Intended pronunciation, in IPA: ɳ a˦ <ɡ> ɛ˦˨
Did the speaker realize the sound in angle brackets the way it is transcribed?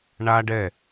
no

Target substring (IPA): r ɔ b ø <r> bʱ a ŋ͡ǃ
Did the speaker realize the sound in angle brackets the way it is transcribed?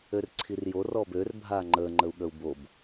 yes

